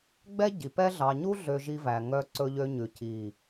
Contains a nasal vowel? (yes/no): no